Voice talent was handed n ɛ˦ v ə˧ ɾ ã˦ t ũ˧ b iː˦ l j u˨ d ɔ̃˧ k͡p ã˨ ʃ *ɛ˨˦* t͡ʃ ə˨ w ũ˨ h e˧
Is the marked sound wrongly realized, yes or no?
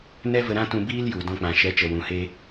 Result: no